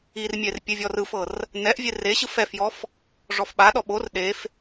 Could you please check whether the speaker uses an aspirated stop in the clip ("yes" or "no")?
no